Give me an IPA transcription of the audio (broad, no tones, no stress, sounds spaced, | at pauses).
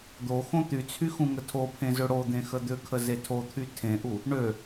d̪ o x õ t̪ y t͡sʰ y x ũ ŋ ə tʰ o pʰ ẽ z ø ɽ o d̪ ẽ x ə d̪ ʏ kʰ ə z e tʰ o t̪ʰ y tʰ ẽ ʔ u | ɳ ø